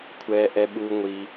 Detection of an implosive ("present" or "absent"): present